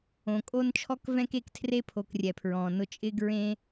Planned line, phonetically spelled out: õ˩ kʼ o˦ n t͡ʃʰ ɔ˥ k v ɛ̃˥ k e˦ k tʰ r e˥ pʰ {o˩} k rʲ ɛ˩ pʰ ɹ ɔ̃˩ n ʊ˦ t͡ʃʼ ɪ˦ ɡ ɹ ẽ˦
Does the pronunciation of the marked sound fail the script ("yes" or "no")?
yes